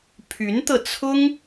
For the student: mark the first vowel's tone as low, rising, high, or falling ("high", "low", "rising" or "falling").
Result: rising